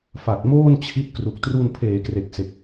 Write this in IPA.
fa˨˩t̚moː˥˩n t͡ɕʰi˦˥t̚kru˨˩k̚ tru˧npʰeː˩˦kre˨˩k̚se˨˩k̚

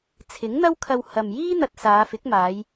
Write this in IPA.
t͡sʰɪ˨˥ŋn̪ɐ˥wkʰɐ˧w hɐ˨mjiː˥n̪ɐ˧t̚ saː˨˧fɪ˨˥k̚maː˨˧j

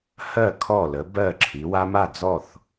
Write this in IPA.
hɜ˥˨ kʰɔ˥˨lə˨˥ bɜ˥˨ ǁʰi˩˧wa˦ma˥˨d͡zɔ˥˨θ

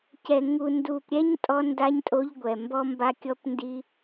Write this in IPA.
cɛ˨ŋu˨ ndu˨pɾʲɛ˦ɲ tʼɔ˦nda˦ɲtʼo˦ʎɡʷɛ˨ mbɔ˦mba˦kʲɔ˦pndi˦

